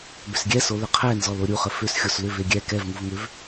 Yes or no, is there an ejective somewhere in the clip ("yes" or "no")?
no